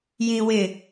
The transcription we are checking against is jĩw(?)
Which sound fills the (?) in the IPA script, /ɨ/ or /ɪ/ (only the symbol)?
ɪ